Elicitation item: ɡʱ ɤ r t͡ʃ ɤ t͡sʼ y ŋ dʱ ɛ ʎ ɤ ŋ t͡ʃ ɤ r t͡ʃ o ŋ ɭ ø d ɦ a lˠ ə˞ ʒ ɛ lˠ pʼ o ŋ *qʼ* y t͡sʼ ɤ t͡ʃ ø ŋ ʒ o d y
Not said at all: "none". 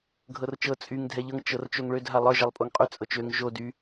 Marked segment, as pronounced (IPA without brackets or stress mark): qʼ